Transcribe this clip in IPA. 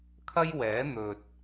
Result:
kʰ ɐ˥ j w ɛː˨˥ n̪ ɵ˨ t̚

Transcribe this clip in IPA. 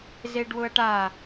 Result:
z e ɖ w ʊ ɐ̯ ʈ a

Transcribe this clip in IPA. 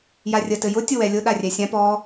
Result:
j a rʲ ə t ɘ j ʊ tʲ ʊ w ɛ lʲ ʊ ɗ a rʲ ɛ sʲ ã p ɔ

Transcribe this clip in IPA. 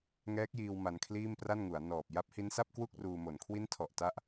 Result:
ŋ ɛː˦˥ k̚ j iː˧ w m a˧ n kʰ l iː˥˩ m p r a˥˩ n ŋ u˩˦ a̯ n ɔː˨˩ p̚ j a˦˥ p̚ h i˦˥ n s a˥˩ p̚ k w u˥˩ k̚ r uː˧ m o˨˩ n kʰ w i˦˥ n tʰ ɔ˨˩ ʔ t a˦˥ ʔ

